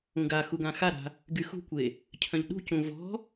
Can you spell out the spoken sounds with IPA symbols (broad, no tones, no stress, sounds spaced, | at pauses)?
ũ ɡ a x u ɡ ã x a ɾ a̤ | ɡ y x ṳ kʷ e | cʰ œ̃ ʎ ɗ ṳ c ũ v ɔ̤